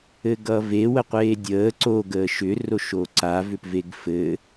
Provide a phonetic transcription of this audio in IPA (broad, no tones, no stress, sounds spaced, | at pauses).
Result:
ɘ ɡ ʌ v e w ə qʷ eː dʲ əː ǀ o ɡ əː ʃ ʏ r o ʃ o ǀ a v ʏ p v e ɡ f ɘ